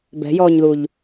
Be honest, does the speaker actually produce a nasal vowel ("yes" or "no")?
no